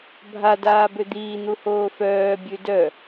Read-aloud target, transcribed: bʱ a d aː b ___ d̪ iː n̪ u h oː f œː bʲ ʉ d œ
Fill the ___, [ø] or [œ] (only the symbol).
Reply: ø